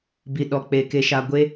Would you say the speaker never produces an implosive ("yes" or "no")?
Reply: no